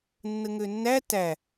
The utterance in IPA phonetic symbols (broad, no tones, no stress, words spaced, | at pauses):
nːəŋønːæ tæ